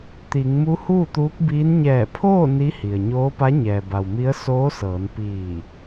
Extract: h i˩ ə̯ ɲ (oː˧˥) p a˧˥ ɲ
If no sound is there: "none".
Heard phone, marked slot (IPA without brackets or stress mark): oː˧˥